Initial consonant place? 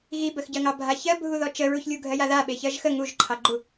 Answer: velar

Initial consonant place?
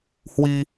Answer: glottal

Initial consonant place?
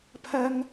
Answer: labial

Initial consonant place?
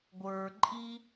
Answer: velar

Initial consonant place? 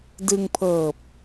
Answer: alveolar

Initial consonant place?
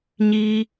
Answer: palatal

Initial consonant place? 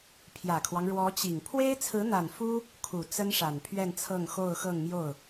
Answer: labial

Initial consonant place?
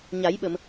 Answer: palatal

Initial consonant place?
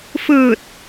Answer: labial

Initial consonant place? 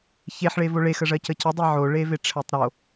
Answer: palatal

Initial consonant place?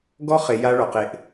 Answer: velar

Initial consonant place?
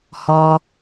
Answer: glottal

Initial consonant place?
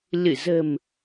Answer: alveolar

